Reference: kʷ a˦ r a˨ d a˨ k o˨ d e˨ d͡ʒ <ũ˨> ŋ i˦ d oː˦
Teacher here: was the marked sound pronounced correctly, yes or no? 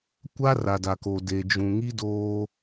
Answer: yes